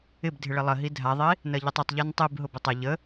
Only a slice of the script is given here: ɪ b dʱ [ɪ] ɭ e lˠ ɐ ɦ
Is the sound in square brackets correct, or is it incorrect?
correct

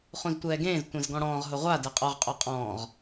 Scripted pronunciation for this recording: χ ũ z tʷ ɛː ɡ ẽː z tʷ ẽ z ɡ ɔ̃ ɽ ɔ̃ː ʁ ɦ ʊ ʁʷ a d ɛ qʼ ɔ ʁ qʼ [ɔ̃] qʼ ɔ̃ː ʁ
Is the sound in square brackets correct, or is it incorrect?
incorrect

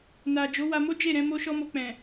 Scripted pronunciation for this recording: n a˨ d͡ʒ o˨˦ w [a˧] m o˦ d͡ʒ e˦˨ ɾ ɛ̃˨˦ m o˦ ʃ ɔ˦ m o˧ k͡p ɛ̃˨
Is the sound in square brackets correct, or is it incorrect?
correct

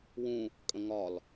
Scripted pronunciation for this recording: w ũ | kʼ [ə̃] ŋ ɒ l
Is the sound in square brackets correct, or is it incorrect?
correct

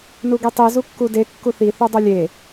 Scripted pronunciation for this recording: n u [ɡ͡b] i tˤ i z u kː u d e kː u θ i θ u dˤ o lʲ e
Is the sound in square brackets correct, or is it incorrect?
incorrect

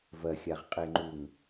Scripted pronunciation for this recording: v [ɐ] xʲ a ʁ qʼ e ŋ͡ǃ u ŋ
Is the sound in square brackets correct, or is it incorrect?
correct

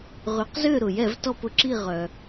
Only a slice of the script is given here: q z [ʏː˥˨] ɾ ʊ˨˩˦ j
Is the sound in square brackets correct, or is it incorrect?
correct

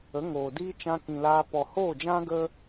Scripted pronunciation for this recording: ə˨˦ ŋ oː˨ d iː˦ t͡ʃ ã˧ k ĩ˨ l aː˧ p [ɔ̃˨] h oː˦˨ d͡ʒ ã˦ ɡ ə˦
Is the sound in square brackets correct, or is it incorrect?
incorrect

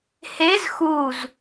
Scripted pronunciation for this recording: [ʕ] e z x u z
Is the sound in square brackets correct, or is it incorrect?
incorrect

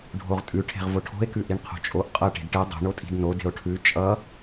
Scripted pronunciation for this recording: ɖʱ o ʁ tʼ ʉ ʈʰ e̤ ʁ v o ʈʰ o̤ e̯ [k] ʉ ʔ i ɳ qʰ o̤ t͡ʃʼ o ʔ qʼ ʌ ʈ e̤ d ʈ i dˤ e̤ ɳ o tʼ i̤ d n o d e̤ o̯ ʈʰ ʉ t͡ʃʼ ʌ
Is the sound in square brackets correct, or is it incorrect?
correct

